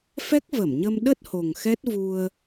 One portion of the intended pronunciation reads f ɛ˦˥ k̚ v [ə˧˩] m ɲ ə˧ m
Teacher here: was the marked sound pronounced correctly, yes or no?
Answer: yes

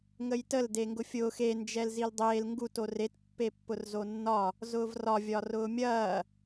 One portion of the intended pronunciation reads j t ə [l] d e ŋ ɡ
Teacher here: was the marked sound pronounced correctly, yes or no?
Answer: yes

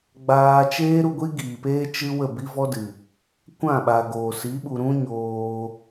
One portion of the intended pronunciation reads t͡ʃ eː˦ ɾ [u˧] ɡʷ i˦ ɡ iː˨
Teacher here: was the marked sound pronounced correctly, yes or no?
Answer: yes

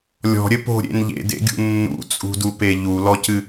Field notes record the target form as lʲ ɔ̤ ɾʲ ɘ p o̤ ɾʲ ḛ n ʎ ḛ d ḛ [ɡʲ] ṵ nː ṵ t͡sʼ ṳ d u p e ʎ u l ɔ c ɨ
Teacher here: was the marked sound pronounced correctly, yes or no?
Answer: yes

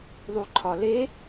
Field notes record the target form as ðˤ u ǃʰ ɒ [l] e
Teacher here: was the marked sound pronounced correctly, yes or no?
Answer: yes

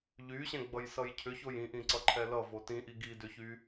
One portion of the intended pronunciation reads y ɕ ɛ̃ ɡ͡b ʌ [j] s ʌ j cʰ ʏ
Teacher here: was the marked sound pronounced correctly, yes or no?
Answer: yes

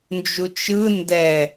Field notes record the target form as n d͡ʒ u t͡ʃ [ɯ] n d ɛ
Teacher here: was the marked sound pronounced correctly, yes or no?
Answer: yes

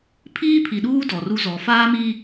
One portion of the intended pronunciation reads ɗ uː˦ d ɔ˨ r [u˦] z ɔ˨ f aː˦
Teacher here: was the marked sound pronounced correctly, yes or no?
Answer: yes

